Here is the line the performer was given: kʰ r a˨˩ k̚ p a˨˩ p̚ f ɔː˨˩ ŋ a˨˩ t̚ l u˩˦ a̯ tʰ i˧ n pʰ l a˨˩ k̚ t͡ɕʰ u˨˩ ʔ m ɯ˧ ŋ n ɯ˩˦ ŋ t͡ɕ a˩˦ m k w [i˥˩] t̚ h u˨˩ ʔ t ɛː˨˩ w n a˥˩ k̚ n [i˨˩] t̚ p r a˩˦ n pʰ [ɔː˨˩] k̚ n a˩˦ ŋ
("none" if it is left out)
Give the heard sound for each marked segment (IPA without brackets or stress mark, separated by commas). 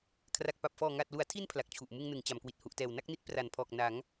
i˨˩, i˦˥, ɔː˨˩